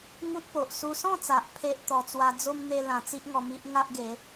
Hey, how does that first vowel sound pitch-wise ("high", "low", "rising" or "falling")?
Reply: high